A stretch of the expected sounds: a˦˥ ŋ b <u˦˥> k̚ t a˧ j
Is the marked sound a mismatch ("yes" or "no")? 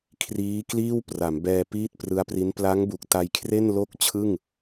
yes